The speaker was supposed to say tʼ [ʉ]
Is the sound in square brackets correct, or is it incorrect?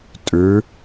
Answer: correct